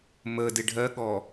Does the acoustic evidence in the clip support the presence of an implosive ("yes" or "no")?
yes